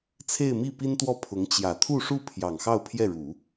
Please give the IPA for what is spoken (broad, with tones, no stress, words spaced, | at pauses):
t͡sʰe˥˧ɪ̯mi˥˩pi˥nt̪wɔ˥˩ pʰʊ˧˥ŋt͡ɕjä˨˩ t̪ʰu˥˧ʂu˥˩ pʰjɑ˨˩ŋxɑ˥˧ʊ̯pʰjɛ˥˩ɻu˨˩˦